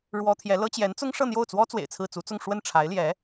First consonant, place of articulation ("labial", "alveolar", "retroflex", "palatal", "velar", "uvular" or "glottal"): retroflex